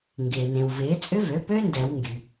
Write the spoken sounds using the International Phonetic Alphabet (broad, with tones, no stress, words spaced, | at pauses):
ŋɡɪː˩nẽ˩w vɪː˩˥ t͡sʼʏ˦˥vø˩˥pø˦˥ ndɛ˨˩˦wŋɡy˩